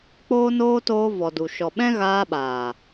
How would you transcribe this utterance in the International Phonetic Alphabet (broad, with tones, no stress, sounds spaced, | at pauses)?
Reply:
k͡p oː˦ n oː˦ t oː˧ v ɔ˨ d u˨ ʃ ɔ˨ ɓ ɛ̃˦ ɣ aː˧ ɓ aː˨